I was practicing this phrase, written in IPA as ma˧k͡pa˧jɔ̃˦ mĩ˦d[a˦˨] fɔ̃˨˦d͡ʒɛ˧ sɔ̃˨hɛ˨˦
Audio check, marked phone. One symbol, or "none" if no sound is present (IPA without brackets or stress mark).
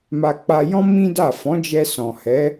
a˦˨